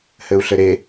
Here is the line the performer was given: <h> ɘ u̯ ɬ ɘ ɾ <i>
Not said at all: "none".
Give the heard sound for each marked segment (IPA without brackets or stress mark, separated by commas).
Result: h, e